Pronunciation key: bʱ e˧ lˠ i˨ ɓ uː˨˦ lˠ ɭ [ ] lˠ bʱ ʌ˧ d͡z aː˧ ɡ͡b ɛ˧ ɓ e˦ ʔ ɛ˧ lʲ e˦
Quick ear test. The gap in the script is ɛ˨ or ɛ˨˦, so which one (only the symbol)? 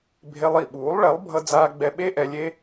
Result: ɛ˨˦